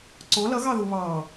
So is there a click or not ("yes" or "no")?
yes